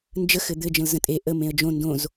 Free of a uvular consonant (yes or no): yes